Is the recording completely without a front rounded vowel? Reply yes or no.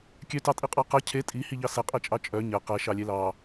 no